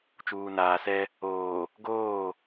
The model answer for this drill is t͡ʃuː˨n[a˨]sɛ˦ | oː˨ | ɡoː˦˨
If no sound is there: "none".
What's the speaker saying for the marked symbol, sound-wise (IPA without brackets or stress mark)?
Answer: aː˨